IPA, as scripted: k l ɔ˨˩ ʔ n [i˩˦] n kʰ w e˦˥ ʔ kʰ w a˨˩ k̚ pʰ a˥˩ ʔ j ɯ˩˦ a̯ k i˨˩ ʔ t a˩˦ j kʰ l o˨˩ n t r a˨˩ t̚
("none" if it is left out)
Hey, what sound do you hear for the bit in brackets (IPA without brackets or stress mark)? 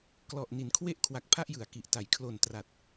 i˩˦